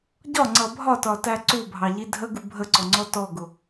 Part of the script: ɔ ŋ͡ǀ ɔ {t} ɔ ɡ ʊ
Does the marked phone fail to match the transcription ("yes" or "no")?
no